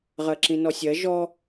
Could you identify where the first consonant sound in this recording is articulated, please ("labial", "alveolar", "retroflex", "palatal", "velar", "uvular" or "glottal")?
uvular